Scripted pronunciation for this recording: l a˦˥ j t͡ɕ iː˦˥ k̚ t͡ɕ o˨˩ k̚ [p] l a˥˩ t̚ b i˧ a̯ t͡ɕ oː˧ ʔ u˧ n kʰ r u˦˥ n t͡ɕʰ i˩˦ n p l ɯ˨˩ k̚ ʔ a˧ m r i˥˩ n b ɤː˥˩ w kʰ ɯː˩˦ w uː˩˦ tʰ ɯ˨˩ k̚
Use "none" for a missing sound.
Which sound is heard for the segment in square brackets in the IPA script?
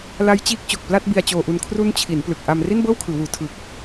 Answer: p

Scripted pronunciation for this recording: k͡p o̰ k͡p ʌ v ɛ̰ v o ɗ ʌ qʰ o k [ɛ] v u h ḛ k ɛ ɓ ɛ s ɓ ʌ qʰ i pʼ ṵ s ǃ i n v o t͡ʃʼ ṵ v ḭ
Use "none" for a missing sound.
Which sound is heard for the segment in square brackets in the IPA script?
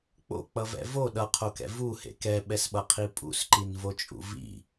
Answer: ɛ̰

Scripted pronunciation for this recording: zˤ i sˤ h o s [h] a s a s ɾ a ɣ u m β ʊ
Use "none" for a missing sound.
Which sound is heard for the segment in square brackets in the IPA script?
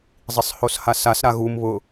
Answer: h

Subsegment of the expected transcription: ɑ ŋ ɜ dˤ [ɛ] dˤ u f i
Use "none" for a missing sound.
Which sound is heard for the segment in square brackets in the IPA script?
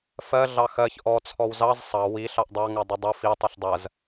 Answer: ə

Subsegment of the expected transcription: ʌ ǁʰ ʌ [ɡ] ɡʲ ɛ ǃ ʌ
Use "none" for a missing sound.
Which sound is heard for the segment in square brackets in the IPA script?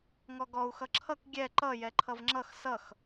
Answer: k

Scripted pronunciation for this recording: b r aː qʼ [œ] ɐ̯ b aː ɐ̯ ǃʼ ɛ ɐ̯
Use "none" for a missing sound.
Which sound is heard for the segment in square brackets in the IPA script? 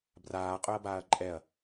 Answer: œ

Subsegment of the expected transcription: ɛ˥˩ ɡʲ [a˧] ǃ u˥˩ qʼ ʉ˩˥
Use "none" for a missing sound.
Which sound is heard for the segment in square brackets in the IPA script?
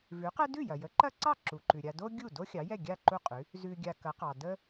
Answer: a˥˩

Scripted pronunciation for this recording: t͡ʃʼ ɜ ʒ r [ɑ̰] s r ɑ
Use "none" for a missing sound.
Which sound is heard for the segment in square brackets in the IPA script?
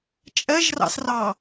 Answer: ɑ̰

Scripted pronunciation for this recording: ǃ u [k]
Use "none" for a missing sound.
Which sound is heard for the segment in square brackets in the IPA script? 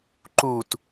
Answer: t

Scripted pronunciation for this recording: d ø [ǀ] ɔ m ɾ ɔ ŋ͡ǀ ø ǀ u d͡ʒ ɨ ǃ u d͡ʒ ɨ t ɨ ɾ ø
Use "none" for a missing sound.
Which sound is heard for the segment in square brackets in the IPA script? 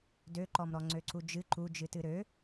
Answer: ǃ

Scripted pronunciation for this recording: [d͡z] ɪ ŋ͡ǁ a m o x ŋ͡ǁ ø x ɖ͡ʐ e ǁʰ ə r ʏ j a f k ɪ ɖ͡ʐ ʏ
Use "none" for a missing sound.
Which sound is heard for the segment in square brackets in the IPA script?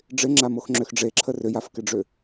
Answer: ɖ͡ʐ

